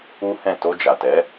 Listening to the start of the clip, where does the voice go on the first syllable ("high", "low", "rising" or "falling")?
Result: high